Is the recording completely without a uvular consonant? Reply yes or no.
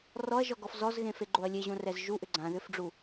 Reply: yes